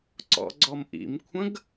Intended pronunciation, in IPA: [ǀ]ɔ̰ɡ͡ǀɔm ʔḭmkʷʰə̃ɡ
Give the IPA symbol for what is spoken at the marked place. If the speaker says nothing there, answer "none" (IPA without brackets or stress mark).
ǀ